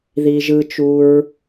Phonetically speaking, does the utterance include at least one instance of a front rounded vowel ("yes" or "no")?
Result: no